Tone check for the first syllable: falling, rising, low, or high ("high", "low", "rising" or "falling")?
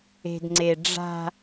low